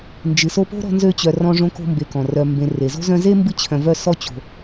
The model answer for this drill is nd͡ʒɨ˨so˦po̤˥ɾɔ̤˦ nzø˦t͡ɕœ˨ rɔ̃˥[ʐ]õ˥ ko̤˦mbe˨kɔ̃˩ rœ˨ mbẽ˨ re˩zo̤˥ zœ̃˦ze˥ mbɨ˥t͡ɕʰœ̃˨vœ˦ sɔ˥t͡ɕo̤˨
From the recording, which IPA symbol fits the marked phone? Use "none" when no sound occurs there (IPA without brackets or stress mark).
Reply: ʐ